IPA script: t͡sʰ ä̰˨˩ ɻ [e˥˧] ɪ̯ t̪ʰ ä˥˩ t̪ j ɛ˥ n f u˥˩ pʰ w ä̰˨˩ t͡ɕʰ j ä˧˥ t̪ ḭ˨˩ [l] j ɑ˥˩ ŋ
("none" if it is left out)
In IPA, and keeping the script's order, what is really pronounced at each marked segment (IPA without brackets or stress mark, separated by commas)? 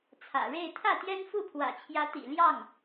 e˥˧, l